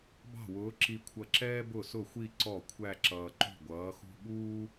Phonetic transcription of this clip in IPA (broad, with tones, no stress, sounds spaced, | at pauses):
b ɑ̤˥˩ w ʊː˨˥ ǁ i˧ kʷʰ ʌ˧ ǁ ɛː˥ b ʊ˥˩ s ʊ˥˩ xʷ i˥˧ ǀ ɔ˥˩ kʷʰ æ˥˧ ǁ ʌː˧ ǃ ṳ˥˩ ɡʷ ʌː˨˥ x ṳ˥ ɠ uː˥